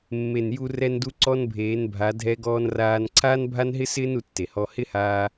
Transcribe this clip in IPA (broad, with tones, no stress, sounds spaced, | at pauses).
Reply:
mː e˨ n j u˧ r ɛ˧ n d u˧ ǀ ɔ˦ n bʱ eː˨˦ n bʱ a˨˦ dʱ ɛ˧ ɡ ɔː˧ n r aː˧ n ǀʰ aː˦ n bʱ a˦ n ɦ ɪ˦ s ɪː˦ n u˧ tː e˨ h ɔ˧ h ɪ˦ h aː˧